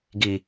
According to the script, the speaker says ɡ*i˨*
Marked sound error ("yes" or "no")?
no